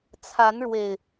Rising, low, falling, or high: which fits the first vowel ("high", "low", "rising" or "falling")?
rising